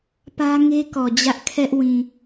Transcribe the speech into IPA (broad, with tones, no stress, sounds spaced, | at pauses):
p ä˦ ŋ e˦ k ɔ˨ d͡ʑ ä˦ ʔ kʰ ɛ˦ ʔ w ĩ˨